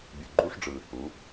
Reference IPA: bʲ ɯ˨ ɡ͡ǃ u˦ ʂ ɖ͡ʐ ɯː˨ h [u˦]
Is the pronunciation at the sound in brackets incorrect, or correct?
incorrect